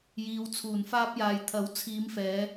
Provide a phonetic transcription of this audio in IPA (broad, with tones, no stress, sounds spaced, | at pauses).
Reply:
j iː˨ w t͡sʰ uː˨˩ n f aː˧ p̚ j aː˨ j t̪ʰ ɐ˨˥ w t͡sʰ iː˨˧ m f ɛː˨˧